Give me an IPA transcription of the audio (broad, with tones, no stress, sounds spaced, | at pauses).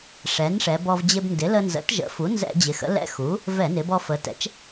ʂ ɛ˩˥ n ʂ ɛ˩˧ b ɔ˧ v d͡ʑ ɪ˧ b n d ɪ˩˥ l ə˧ n z ə̰˩˥ t ʒ ə̰˩˥ f u˩˥ n z ɛ̰˧˩˧ d͡ʑ ɪ˩˧ x ə̰˩˥ l ɛ̰˧ x u˩˥ | v ɛ˧˩˧ n ɪ˩˧ b ɔ˧ f ə˩˧ t ɛ̰˩˥ t͡ʃ